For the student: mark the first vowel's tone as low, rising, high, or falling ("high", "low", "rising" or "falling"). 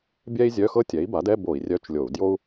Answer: high